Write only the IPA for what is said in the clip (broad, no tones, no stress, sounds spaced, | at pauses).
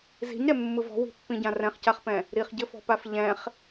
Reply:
z i̤ ɲ ɾ ɛ mː ɯ v ɔ̤ w i̤ pː ĩ ɟ ã r ɛ̃ χ c a χ p ɛ̃ | ɾ i χ ɟ ɘ f ɔ̤ p a f ʎ ɛ̃ χ